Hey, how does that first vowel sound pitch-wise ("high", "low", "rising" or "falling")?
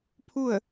falling